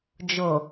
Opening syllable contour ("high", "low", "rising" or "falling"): low